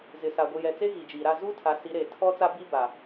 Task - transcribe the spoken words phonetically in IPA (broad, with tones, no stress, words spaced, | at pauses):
zɪ˨sa˨ɡʷi˨ jɛ˨t͡se˦ ɣi˨d͡ʒiː˨ɾa˦˨ zuː˦ tʰa˨˦si˨˦ɾeː˨ tʰɔ˦t͡sa˦bi˦ ba˨